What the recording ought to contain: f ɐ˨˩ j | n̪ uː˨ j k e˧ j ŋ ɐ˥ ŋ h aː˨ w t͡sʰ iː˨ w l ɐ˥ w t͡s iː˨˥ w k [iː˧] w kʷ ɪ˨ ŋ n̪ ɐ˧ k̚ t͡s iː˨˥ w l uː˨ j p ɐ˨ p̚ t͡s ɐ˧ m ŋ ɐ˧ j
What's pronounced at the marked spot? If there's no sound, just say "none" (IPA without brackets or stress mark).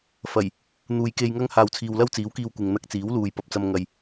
iː˧